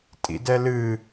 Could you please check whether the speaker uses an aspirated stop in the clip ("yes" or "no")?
no